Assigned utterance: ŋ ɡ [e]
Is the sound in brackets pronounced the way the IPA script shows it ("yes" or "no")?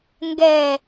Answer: no